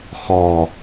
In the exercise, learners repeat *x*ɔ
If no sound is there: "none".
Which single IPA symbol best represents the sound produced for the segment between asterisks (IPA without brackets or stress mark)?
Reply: x